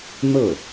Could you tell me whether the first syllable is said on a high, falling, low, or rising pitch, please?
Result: falling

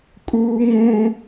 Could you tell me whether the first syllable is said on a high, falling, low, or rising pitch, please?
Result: high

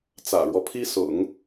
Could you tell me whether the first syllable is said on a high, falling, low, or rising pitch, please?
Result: low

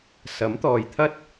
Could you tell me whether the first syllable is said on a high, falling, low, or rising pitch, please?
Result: rising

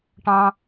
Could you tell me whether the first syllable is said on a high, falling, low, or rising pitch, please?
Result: high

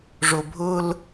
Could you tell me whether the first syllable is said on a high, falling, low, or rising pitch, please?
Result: low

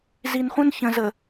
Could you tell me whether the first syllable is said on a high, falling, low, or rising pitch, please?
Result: low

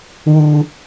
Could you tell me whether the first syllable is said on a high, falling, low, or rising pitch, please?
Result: high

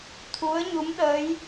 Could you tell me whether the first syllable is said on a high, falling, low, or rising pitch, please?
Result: rising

